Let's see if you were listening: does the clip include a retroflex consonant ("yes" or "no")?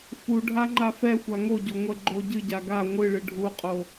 yes